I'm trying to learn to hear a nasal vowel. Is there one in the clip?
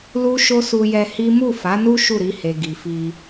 no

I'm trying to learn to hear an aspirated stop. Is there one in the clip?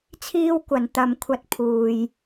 yes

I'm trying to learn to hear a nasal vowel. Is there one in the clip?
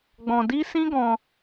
yes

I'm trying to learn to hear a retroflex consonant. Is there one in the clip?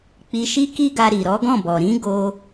no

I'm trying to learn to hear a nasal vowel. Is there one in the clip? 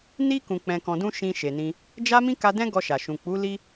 yes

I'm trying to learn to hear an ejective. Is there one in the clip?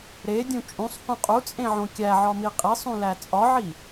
yes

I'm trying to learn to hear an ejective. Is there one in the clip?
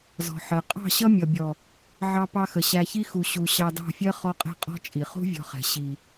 yes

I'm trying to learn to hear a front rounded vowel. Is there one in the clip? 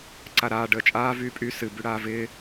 yes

